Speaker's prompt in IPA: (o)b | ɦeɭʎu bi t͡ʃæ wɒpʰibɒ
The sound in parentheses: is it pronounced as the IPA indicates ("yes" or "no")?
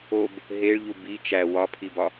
yes